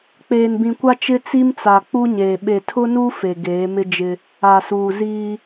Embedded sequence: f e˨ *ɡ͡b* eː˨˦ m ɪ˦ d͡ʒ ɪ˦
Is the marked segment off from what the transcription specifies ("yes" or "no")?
yes